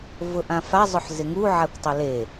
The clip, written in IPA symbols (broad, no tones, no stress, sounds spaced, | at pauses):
v ʊ ʔ ã f a zˤ ʊ ħ z ɪ ŋ u ʕ a kʷ tˤ ʊ l e